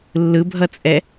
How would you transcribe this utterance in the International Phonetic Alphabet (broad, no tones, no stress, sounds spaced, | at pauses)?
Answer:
lː ɯ bʱ ʌ t͡sʼ ɛ